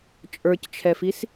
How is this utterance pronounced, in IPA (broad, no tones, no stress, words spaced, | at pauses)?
t͡ʃʼə˞ct͡ʃʰɛfis